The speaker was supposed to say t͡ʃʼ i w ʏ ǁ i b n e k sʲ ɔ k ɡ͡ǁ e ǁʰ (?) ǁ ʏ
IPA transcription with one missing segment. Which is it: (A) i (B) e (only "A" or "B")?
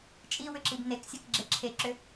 B